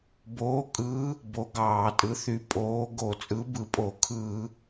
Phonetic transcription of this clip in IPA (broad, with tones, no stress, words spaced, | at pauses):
boː˨˥kʼɯː˨˥ | bo˨˥ɡɑː˧˩˧tʼɯ˨˥ θy˨˥pʼoː˨˥ ɡo˧˩˧t͡sʼɯ˨˥bɯ˧˩˧pʼo˧˩˧ kʰɯː˧˩˧